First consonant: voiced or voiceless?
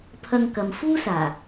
voiceless